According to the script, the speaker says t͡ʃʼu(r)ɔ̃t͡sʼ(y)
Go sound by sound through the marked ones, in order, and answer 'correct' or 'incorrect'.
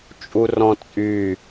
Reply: correct, correct

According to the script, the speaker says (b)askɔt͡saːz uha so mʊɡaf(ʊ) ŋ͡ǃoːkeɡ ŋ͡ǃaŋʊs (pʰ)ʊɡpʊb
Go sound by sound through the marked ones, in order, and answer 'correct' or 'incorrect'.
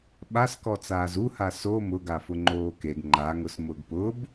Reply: incorrect: ɓ, correct, incorrect: m

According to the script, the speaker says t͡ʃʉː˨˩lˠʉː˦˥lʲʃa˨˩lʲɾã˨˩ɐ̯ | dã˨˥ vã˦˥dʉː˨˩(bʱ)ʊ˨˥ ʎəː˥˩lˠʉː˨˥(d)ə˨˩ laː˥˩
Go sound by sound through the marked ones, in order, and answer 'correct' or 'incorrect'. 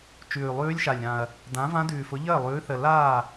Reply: incorrect: f, incorrect: θ

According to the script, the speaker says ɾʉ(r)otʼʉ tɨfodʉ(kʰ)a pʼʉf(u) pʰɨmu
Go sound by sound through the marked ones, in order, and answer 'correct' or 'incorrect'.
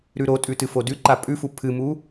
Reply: incorrect: ɾ, incorrect: ǃ, correct

